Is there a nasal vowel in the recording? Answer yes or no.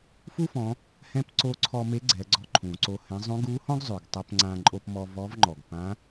yes